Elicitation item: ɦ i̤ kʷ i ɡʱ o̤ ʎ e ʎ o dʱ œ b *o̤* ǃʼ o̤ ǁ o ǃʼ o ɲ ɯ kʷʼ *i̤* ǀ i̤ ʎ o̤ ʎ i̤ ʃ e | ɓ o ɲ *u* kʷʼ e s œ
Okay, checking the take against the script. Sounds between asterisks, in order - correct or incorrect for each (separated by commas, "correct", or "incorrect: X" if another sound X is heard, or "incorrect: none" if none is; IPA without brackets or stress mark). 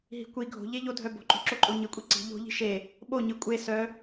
correct, incorrect: i, incorrect: ɯ